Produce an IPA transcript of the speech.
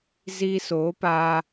ziː˧soː˨˦paː˧

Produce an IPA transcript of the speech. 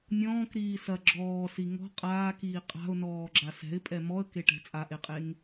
nʲɔ̃ːkɾiː sɐ ɡ͡ǁɔːsi ŋɔ̤ qʼaːkiː qʼa̤ʊ̯nɔːɡ͡ǁa sɛ̤ɪ̯pʼɛ mɔə̯keʈɛ̤ t͡sʼaʔeqʼeŋ

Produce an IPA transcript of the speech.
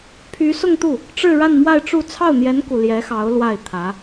pʰy˧˥sʊ˥˧ŋt̪u˥˩ | ʈ͡ʂɻ̩˥˧ɻa˥˧nmwa˥˧ɪ̯ʈ͡ʂu˥˧ t͡sʰɑ˥˩ʊ̯n̪jɛ˧˥nku˨˩ ljɛ˧˥xɑ˧˥ʊ̯ lwa˥˩ɪ̯t̪ʰä˧˥

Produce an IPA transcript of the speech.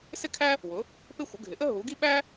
sɪ˥kʰæ˥ | wʊ˩˥ | pɪ˥xʷə˩˥ ɡʱɪ˩˥ʔə˥ ɦu˩˥ɡi˥ ɓæ˥

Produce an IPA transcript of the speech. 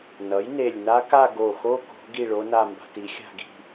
nʌ˩˥j ne˧˩lʲ na˦˥ka˥˧ ɡo˧˩xo˦˥ ko̤˩˥ ɡi˥˧ɭo˦˥na˥˧ mba̤˧ti˩˥xʲa̤˥˧ɡi̤˥˧

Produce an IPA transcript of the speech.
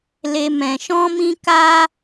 le˦ mɛ̃˧ʃɔ̃˦mĩ˦ ka˦

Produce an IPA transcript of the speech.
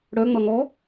ɽœŋ͡mʌ ŋɔ

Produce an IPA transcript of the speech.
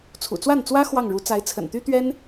t͡sʰṵ˨˩t͡swa˥˩nt͡swä˥ xwɑ˥˩ŋɻu˧˥ t͡sa˧˥ɪ̯t͡sʰə̰˨˩nt̪y˥t̪ɥɛ˥n

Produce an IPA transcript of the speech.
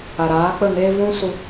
a˨ɾaː˨˦k͡pə˦˨ŋeː˦ vũ˦ su˧

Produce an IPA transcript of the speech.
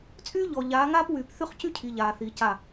t͡sʼyː˦ʎɔ˨ ʎaː˨˦ŋaː˦pwyː˨p θy˦χcy˦cʰi˨ ʎaː˨ θi˨˦ca˦˨

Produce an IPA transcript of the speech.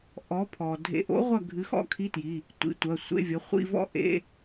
ʔɔ˨˥pʰɔ˩ dʱḛ˨˥ʔo̰˨˥ʁʷɐ˦˨ ɡʱɨ˨˥xɔ̰˥kʰi˧˥˧tji˩˧˩ | tʷḭ˨˥tʷɐ˩˧˩sʷḛ˧˥˧vʲɐ˨˥ χʷḭ˧˥˧vɔ̰˥ ʔḛ˧˥˧

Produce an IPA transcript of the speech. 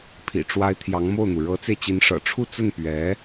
pʰḭ˨˩ʈ͡ʂwa˧˥ɪ̯ t̪ʰjɑ˧˥ŋmo˥˩ʊ̯n̪u˩ ɻɤ˧˥t͡se˧ɪ̯t͡ɕi˧˥n ʂɤ̰˨˩ ʈ͡ʂʰu˥˧t͡sə˥˩n pɥɛ˧˥

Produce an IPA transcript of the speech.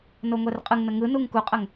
noŋʷɛrqʼɯŋnə ŋɯnuŋ kuqʼəŋ

